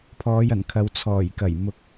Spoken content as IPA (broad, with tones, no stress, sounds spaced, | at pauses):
pʰ ɔː˨˧ j ɐ˨˩ n kʰ ɐ˨˧ w t͡sʰ ɔː˨˩ j k ɐ˨˩ j m ʊ˨˥ k̚